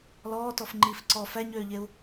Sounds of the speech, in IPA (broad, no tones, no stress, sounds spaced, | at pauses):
l ɔː t ɔ f ŋ͡ǃ i f ǀ ɔ f æ ɲ øː ʎ e u̯